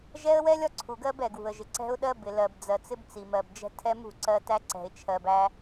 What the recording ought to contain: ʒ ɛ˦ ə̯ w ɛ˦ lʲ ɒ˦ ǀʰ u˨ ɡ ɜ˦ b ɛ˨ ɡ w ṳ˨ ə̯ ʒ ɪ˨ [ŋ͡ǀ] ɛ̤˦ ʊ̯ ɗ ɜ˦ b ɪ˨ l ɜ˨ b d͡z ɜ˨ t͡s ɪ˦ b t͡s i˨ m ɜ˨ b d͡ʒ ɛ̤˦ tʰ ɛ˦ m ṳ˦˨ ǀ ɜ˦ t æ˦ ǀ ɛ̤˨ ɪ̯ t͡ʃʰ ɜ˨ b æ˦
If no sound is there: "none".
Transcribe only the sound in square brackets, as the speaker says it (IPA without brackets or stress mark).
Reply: ǀ